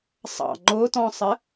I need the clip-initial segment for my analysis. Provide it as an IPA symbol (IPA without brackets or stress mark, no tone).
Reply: sˤ